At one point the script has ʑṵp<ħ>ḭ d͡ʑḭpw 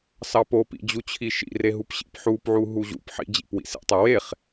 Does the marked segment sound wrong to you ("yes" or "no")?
no